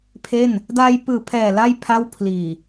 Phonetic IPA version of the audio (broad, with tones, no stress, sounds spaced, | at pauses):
pʰ e˥˩ n | d aː˧ j p ɯː˨˩ pʰ ɛː˨˩ l a˥˩ j pʰ a˥˩ w pʰ l iː˨˩